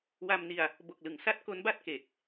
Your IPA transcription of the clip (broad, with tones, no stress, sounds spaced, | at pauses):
w a˧ m n i˧ a̯ | b o˨˩ k̚ l ɯ˩˦ ŋ s a˦˥ t̚ k o˦˥ n b a˥˩ t̚ k e˨˩ k̚